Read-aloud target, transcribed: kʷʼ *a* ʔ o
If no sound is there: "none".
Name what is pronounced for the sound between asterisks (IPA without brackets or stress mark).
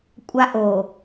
a